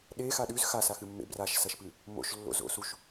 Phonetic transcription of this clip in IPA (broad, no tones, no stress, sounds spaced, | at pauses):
ɗ e x a ɗ ʉ z x a s a x ɨ mː ḛ b r a ʃ s ɐ ʃ p ɨ | m o̰ ʃ lː o̰ z o̰ s u ʃ